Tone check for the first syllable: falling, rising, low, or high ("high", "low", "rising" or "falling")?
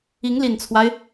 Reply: rising